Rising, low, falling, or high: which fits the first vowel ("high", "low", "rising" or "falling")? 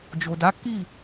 low